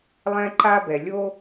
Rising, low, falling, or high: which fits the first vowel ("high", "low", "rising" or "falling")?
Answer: high